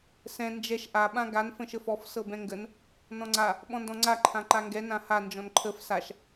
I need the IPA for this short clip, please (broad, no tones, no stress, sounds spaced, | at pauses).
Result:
s ɛ̃ n d͡ʒ ɛ ʃ ʔ a ɓ ã ɡ a n f ə̃ ʃ ə f ɔ f s ɤ b ɛ̃ ŋ ɡ ə n | n ɔ̃ ŋ͡ǀ a | ɓ ɔ̃ n d ɔ̃ ŋ͡ǀ a ǃʰ ã ǃ a ŋ ɡ ɛ n ã h a n d͡ʒ ɔ̃ n ǃʰ ə f s a ʃ